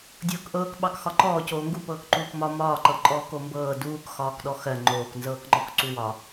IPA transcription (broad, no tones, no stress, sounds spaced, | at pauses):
dʲ ɤː k ʔ ɤː k ɓ ɑ k x ɒ ǃ ɔː c oː ŋ ɡ u p ɤː k ǃ uː k m ɒ m ɒː ǃ ɤ ǃʼ ɔː k o m b ɤː d uː k x ɒː k ɗ ɔ x ɜ ŋ͡ǃ oː k n z ɤː k ŋ͡ǃ ɔ k ǀ u w ɒ